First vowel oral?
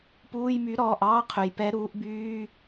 yes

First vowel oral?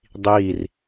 yes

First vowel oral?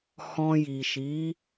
no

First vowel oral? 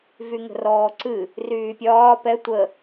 yes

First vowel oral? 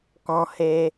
no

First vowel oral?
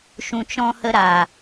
no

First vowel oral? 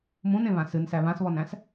no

